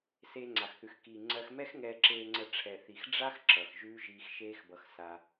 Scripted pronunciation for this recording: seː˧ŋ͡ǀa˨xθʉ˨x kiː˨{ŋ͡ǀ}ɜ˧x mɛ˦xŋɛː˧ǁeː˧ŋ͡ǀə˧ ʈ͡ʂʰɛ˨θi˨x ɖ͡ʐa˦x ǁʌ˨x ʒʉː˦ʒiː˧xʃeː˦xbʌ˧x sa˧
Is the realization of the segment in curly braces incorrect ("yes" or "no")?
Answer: no